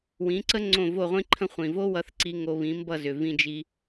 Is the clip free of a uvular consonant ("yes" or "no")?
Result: no